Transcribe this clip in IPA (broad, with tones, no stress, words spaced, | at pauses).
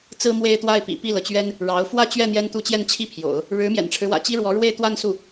t͡sɹ̩˥mwe˥˧ɪ̯t̪wa˥˩ɪ̯ pḭ˨˩pi˥˩lɤ˩t͡ɕɥɛ˥n | ɻɑ˧˥ʊ̯ fwä˥˧t͡ɕɥɛ˥˩ n̪jɛ˥nt̪u˥˧ t͡ɕjɛ˥˩nt͡ɕʰi˥pʰjo̰˨˩˦ʊ̯ | ɻɻ̩˧˥ mjɛ̰˨˩nʈ͡ʂʰɻ̩˦wä̰˨˩ t͡ɕi˥ɻwɔ˧˥ ɻwe˥˧ɪ̯t̪wa˥˧nsu˥˩